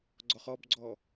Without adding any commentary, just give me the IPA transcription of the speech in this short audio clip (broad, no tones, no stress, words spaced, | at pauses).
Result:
ɡ͡ǀɔχɔbɡ͡ǀɔ